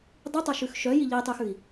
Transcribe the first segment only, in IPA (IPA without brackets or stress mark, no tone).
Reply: dˤ